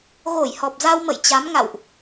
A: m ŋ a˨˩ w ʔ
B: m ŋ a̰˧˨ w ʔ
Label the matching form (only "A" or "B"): B